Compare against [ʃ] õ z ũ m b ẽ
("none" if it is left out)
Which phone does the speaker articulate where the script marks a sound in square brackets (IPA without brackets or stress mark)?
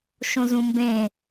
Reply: ʃ